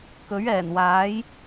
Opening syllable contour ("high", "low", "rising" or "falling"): rising